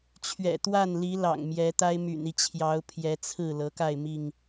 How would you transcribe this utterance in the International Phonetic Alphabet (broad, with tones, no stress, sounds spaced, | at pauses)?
t͡ɕʰ ɥ ɛ̰˨˩ t̪ w a˥˨ n l i˨˦ l ɑ̰˨˩ ŋ m j ɛ˨˦ t̪ a˦ ɪ̯ m y̰˨˩ n i˦ t͡ɕʰ j ɑ˨˦ ʊ̯ pʰ j ɛ˨˦ t͡sʰ ɹ̩˥˨ l ɤ˨˦ k a˥˨ ɪ̯ m i˥˨ ŋ